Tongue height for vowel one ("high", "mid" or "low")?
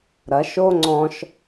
low